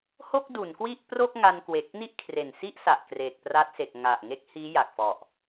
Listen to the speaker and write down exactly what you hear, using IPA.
ho˥˩k̚du˩˦nkwi˥˩ʔpro˥˩k̚ ŋa˧nkwe˨˩k̚ ni˥˩ʔkʰre˨˩nsi˥˩ʔsa˨˩ʔ kreː˨˩k̚pra˦˥t̚se˨˩k̚ ŋa˨˩ʔ ŋe˦˥k̚hiː˦˥ ja˨˩k̚fɔ˨˩ʔ

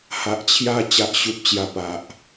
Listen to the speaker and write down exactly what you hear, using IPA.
ha˨ʔt͡ɕʰja˧ t͡ɕa˨ʔɕu˨p̚t͡ɕja˨˩ pa˨ʔ

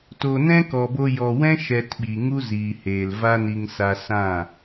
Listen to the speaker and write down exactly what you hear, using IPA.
toː˨nɛ̃˦kɔ˨bo˧ jɔ˨wɛ̃˦ ʃɛ˧tɓi˨ŋu˦ ziː˨heː˨l va˦ni˧ŋ sa˧sã˦˨

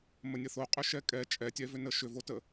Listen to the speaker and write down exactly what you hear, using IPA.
mənʲəθoqʼʏ ʃɛkʼɛ t͡ʃʼɛtʲɛvʏnə ʃʏvotə

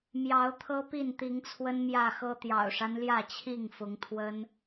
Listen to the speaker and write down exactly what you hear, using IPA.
mjɑ˨˦ʊ̯t̪ʰɤ˦pi˥˨n t̪i˨˦ŋt͡sʰwə˦nmjä˥˨xɤ˦ t̪jɑ̰˨˩ʊ̯ʂa˦nljä˥˨t͡ɕʰi˥˨ŋ fʊ˨˦ŋt̪ʰwə˦n

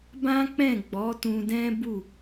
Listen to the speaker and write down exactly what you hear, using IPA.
bã˦k͡pɛ̃˦˨ɡ͡bɔ˨˦ tũ˧dɛ̃˦ bu˦˨

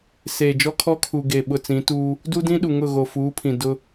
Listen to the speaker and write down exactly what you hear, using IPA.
seː˨d͡ʒɔ˦kʰɔ˦kʰu˨ ɡe˨ ɓʊ˨t͡sĩ˨˦tuː˦ | du˦dĩ˦ɗu˨ ŋʊ˦˨ɣo˨fuː˨˦pʰĩ˨ dʊ˦

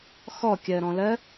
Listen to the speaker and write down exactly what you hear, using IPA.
xɔkʲɜɾɔ̃lɜ

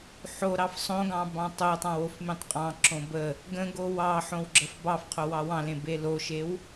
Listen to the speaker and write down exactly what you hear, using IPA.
ħoɾɑf sˤõɡɑ̃ bɑ̃tˤotˤɑ̃w ofmẽtˤqʼɑ̃ǁõ bə | ɡə̃ɡo wɑ ħõwɡ͡ǁəfbɑfqʰo wɑwɑ̃lẽ beloʃew

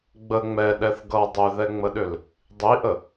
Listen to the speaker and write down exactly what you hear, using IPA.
ɡ͡bə ŋ͡mɛɗɛθ ɡʌ dˤʏðɛŋ͡məɗʏl | dˤiʔə

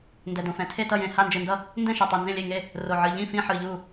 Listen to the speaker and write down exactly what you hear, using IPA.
ndɛ˧˩dõ˧˩fɛ̃˧˩ tʰe˥˨tʌ˥˨jẽ˧˩ ha˥˨nd͡ʒɯ˧˩ndʌ˥˨ | ndɛ̃˥˨ʃɛ˧˩tˤe˧˩ nzẽ˥˨lʲe˥˨ŋe˥˨ | ro˧˩ʕɯ˧˩ ʎĩ˥˨fĩ˥˨ħɯ˧˩ ʎu˥˨

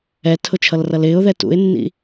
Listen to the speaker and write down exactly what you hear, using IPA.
ɛtʰʊ t͡ʃʰʌlrʌlɪːʊ̯ðɛ tṵɪ̯nːḭ

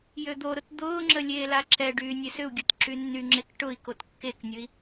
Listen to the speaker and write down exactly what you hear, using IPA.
jød̪oɾʊt d̪ʊːŋ͡ǁə lʲeːlaǁɛɖyː nʲesʏu̯ɡʲɐt ǁynːyŋ͡ǁek ʈʊi̯kot kːeknʲʊi̯

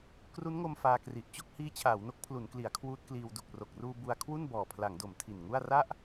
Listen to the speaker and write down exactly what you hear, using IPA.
kru˦˥nŋo˧m faː˧kri˨˩ʔ t͡ɕo˥˩k̚hiː˦˥t͡ɕʰaː˩˦wno˦˥k̚ pʰlu˩˦nkli˩˦a̯ kʰwuː˦˥t̚kliː˧w du˨˩k̚ro˨˩k̚ruː˧ bu˧a̯ kʰwu˥˩nbɔː˨˩pʰla˩˦ŋdo˩˦m tʰi˨˩nŋu˥˩a̯ ra˥˩ʔ

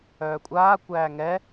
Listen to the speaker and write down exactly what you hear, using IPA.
œːkʷʼaːkʷæː ŋɛ

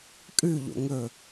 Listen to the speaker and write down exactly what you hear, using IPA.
kʼʉʎo̰ ŋɵ

